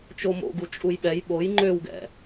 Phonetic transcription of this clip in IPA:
t͡ʃ o m o̰ ɡ u t͡ʃʼ u j ɓ ɛ j ɓ o j ŋ͡ǃ ø w ɡ ɛ̰

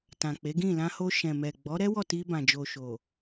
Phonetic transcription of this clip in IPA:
t ã˨ k͡p e˨˦ ɡ ĩ˦˨ l ã˧ h o˧ ʃ ɛ̃˨ m ɛ˨ ɡ͡b ɔ˨˦ ɾ ɛ˦ w ɔ˦˨ t i˧ b ã˨ d͡ʒ o˨ ʃ o˨

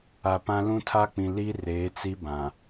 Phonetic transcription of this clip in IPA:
a˨ p ã˦ l ũ˦ tʰ a˦ k͡p ĩ˨ l i˦ r eː˨˦ t͡s i˦ b ã˨

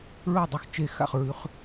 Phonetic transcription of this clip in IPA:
ɹ ɐ˥˩ dˤ ɵ˥˩ x t͡ʃ e˥˩ x a̰˥˩ χ ɹ ʉ˨˦ χ

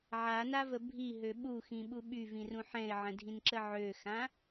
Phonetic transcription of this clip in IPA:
ʕ a n a v ə bʱ i ɦ ø ɓ u x ĩ ɓ u ɓ y v ĩ r ũ ħ ɛ̃ ɪ̯ ʕ ə̃ dʱ ĩ n ǁ ə ʕ ø x ã

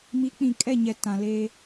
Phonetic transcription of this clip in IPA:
m i˨˦ k͡p ĩ˨ kʼ ɛ˦˨ ɲ ɛ˨ t ã˨ l eː˦

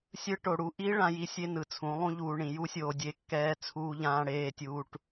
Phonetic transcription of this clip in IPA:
sʲ ɯ˦ ʈ o˨ ɽ u˦ ʔ i˦ ɭ ã˧ j i˦ sʲ e˦ n ɯ˨ t͡sʰ ũ˨˦ lˠ ũ˦ ʎ uː˨ ɳ ĩ˨ j u˦ sʲ oː˨ dʲ e˦ kː ɛː˦ t͡sʰ uː˧ ʎ ãː˧ ɽ eː˧ tʲ uː˧ ʈ

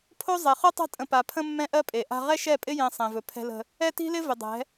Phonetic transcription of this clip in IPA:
pʰ o˦ zˤ e˨ χ o˦ tˤ a̤˦ tʼ ə̃˨ p a˨ pʰ ə̃˦ mː ɛ̃˦ ʔ ɜ˦ pʼ e˨ ʔ a̤˦ ʁ ɛ˦ ʃ ɛ˦˨ pʼ ɪ˦ j ẽ˦ sˤ ẽ˨ v ɵ˨ pʰ ɛ̤˦ l ə̤˦ | ɛ˦ t i̤˦ l ɪ˦ v ɪ˨ dˤ ɛ̤˨˦

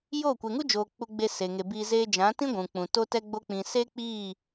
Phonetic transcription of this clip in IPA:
j o˦˨ kʷ e˨ ŋ u˦ d͡ʒ oː˨ k͡p u˧ ɡ͡b e˧ s e˨ ŋ e˨ b iː˧ z eː˧ d͡ʒ ã˨˦ t ĩ˦ ɡʷ ũ˨ k͡p ũ˨ t o˧ t ɛ˧ ɡ͡b o˧ k͡p ĩ˨ s e˦ k͡p iː˦˨

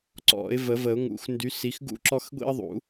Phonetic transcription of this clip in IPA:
ǀ ɔ̰˨˩˦ ɪ̯ v ə˨˩˦ v ə˨˩˦ ʊ̯ ŋ ṵ˨˩˦ x n d y˨˦ s i˨˦ x ɡ ṵ˦ ǁ ɔ˦ x ɡʷ ḭ˦ ə̯ ðˤ ṵ˨˩˦

